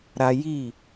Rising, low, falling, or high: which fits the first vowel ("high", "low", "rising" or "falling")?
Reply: high